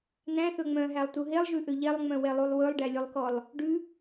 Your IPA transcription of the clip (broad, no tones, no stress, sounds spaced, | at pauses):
n̪ æ̃ θ ɵ ŋ͡m œ̃ ɦ æ lˠ t u ɦ e lˠ ʒ ʉ ʔ ø ʎ ɛ lˠ ŋ͡m œ̃ w ɛ lˠ u lˠ w ɵ lˠ ɖ æ lʲ ɵ lˠ k ɔ lˠ | ɖ ʉ